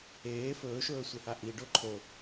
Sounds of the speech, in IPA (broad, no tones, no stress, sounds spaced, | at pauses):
eː f ɵː ʃ ɵː sʷ e h a ʔ i ɖ o ǃʰ o